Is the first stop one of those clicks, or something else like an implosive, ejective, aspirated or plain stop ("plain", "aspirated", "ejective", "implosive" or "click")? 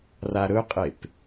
ejective